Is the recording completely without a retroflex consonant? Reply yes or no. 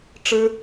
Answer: no